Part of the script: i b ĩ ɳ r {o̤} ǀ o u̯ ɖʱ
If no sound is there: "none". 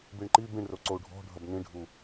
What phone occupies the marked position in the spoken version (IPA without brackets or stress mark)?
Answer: o